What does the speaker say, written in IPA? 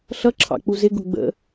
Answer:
ɬʌǁʰɑ̰ k͡puzɪɡʊ ɡ͡bə̰

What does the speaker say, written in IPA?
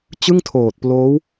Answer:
t͡ɕɯ˥˩ŋtʰoː˨˩t̚ploː˦˥w

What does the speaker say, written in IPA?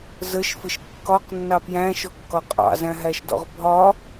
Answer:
zəʃfɪʃ kːɒqnːɑ pjæ̃ʃɔkːɒ qʼɑ̰zæ̃ɦæʃdɔ̰ʁ bʱɒ

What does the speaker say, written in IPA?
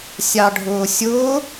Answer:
sʲɑɖʱʊːsʲʊː

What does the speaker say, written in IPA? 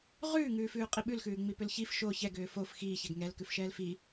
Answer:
ʁʉːŋʉːfʉː qʼiɓʉlxʉː ŋ͡mipʏlçif ʃo çɛɡʏː fof xiː çɛɡŋɛl kʉfʃɛːlfi

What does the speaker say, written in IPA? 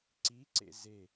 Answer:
ǀiǀḛ ze

